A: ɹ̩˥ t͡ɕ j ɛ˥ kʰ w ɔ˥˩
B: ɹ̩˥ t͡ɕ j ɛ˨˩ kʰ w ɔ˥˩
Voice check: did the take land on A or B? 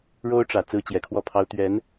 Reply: B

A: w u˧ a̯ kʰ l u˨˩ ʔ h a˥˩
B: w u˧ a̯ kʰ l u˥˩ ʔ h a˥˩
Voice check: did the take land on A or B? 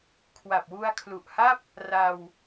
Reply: A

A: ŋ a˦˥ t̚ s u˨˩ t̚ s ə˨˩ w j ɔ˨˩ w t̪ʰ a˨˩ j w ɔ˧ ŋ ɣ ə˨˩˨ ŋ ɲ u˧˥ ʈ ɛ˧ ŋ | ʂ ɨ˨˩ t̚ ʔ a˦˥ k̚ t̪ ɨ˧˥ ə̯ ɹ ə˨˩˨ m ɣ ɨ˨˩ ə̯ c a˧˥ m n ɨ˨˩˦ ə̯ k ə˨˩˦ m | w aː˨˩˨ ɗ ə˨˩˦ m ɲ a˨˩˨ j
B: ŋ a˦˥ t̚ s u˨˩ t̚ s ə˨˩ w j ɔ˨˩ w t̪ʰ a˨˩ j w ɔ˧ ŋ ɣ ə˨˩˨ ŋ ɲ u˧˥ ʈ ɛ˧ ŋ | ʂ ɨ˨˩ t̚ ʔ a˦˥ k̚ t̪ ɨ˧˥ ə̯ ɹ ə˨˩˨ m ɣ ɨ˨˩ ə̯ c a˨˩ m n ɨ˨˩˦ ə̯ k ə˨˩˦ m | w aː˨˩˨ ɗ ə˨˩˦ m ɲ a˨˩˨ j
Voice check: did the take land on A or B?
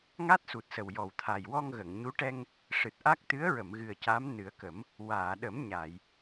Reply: A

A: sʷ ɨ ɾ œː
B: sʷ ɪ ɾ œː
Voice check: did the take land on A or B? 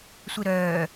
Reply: B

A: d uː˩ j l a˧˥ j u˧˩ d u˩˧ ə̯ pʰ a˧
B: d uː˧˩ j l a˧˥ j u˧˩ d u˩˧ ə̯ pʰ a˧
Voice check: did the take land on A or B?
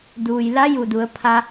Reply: A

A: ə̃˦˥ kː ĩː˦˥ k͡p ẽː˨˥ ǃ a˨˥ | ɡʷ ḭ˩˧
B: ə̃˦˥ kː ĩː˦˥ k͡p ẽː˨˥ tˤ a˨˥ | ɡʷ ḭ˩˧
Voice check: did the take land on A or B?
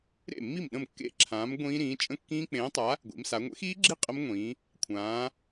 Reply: B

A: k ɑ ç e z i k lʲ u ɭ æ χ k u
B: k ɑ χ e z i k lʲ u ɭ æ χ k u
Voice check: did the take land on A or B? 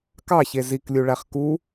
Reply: A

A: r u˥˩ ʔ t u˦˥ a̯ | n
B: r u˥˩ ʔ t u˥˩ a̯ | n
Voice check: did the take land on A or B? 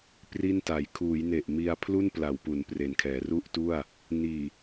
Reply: B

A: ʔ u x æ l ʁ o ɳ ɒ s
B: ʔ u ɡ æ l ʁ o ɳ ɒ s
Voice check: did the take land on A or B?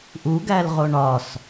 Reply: B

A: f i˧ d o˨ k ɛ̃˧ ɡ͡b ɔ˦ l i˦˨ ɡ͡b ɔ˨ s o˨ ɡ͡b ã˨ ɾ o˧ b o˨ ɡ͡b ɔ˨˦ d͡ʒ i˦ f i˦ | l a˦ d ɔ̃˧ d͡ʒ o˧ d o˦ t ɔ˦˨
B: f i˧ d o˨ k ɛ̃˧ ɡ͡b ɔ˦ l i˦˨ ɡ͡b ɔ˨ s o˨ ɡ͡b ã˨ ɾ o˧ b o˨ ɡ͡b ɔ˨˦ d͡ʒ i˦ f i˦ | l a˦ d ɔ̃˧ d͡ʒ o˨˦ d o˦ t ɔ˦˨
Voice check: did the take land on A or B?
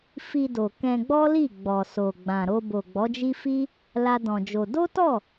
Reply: A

